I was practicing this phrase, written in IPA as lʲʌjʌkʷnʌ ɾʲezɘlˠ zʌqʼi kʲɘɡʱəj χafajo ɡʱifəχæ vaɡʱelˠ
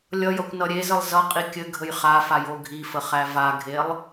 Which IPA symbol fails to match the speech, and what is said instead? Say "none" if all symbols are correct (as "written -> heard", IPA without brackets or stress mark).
none